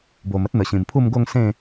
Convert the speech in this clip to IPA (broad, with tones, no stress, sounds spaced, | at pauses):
b o˨˩ m ə˦ t̚ n̪ ə˨˩ ɕ ĩ˨˩ m pʰ u˥˧ m ɡ o˥˧ ŋ s ẽ˥˧